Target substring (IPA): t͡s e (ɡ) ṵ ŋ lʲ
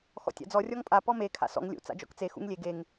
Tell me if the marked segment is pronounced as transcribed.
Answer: no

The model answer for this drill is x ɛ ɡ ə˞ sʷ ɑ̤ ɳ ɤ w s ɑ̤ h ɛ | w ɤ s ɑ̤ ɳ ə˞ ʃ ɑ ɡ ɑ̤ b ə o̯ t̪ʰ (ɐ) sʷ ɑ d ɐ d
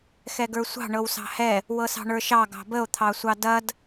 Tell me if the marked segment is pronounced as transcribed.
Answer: no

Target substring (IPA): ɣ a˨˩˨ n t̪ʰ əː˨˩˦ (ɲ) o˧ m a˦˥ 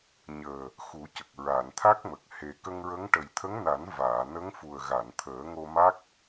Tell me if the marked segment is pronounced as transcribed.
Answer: no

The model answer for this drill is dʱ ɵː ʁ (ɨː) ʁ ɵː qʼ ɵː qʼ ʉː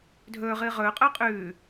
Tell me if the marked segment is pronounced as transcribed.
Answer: yes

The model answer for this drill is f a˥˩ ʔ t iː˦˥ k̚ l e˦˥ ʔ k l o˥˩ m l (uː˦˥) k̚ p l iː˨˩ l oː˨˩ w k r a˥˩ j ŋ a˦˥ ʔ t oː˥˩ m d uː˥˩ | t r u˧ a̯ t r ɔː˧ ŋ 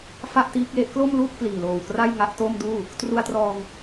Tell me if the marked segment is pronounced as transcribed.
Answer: no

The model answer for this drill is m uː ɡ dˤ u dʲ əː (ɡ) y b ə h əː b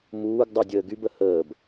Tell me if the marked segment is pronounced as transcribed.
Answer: yes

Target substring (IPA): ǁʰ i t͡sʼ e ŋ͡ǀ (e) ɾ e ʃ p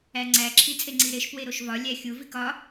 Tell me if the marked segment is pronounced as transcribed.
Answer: no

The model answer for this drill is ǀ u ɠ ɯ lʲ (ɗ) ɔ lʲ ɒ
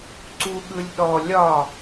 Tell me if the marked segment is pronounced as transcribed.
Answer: yes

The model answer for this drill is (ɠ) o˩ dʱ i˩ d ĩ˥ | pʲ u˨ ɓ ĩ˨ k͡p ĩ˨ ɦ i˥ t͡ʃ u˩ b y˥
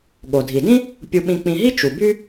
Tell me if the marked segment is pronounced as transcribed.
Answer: yes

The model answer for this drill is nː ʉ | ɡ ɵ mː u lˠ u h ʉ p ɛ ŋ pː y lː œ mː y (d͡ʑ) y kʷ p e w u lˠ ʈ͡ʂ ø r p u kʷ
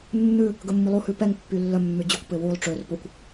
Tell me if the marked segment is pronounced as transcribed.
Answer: yes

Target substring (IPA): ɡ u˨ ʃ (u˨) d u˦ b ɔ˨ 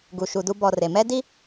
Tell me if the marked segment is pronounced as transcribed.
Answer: yes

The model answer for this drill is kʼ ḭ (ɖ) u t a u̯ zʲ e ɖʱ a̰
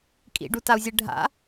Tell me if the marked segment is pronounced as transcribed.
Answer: yes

